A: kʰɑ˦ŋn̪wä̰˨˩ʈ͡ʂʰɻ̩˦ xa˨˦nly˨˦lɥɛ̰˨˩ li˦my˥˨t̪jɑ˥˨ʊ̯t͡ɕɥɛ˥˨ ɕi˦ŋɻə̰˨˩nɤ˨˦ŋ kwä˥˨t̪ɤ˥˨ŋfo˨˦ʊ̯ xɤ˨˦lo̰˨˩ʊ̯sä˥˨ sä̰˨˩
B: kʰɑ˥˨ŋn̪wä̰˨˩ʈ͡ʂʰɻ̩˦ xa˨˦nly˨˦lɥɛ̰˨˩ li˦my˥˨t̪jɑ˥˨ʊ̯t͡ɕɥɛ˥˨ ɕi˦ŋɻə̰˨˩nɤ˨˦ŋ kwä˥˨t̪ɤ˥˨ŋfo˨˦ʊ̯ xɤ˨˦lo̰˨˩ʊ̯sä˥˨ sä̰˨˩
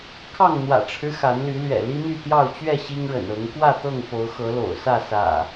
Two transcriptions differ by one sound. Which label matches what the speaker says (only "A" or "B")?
B